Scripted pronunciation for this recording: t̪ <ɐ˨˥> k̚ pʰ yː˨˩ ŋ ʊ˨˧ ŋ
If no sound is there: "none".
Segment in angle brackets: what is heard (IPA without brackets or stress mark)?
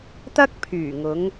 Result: ɐ˥